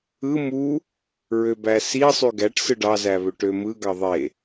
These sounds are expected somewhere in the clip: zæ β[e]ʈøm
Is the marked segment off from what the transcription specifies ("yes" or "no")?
yes